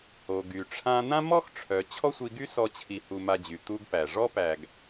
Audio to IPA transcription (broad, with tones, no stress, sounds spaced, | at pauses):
h o˨ ɡ y˨ ʈ͡ʂʰ ã˧ n̪ ã˦ m ɔ˦ x ʈ͡ʂʰ œ˨ t͡ɕʰ ɔ˦ sʷ i˧ ɡ y˦ s ɔ˧ t͡ɕʰ i˧ h u˧ m a˧ d͡ʑ y˨ t̪ u˦ ɡ p æ˨ ʐ ɔ˦ p æ˨ ɡ